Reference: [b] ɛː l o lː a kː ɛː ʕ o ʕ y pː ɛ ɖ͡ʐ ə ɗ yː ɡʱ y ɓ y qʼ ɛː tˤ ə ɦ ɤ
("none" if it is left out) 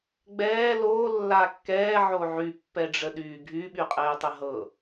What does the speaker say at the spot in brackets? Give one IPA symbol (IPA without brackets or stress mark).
ɡ͡b